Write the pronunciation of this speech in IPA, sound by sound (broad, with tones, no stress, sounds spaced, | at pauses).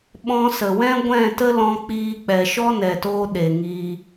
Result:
ɓ ɔ̃˧ s ə˨ w ɛ̃˦ ɡʷ ɛ̃˦˨ t ə˦ l ɔ̃˧ k͡p iː˧ k͡p ɛ˨ ʃ ɔ˦ n ɛ˨ t oː˧ ɗ e˨ ŋ iː˧